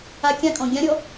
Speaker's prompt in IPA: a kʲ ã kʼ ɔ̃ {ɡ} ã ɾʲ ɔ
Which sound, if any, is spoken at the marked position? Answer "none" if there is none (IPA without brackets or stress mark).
ɡʲ